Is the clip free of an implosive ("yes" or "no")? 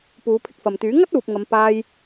yes